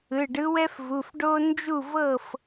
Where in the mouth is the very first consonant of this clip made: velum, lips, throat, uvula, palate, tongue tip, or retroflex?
retroflex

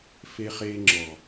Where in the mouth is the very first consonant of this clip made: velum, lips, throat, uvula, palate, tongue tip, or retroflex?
lips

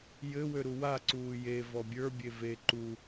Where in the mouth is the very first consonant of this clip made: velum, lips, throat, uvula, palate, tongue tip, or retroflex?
palate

